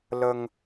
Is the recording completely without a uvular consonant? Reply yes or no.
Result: yes